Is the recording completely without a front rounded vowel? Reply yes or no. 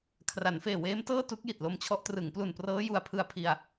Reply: yes